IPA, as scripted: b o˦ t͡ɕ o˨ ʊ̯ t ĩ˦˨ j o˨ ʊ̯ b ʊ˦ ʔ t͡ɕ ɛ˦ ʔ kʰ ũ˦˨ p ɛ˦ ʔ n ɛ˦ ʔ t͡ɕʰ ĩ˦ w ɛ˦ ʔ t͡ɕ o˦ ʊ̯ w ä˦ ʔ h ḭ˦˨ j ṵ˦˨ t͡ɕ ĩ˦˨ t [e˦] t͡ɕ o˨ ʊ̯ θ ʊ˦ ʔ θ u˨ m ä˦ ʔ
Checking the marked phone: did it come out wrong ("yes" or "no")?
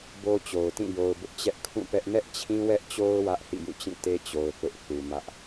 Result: no